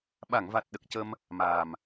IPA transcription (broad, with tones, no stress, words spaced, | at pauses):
ɓa˨˩˨ŋva˨˩t̚ɗə˨˩k̚ cə˧m | maː˨˩m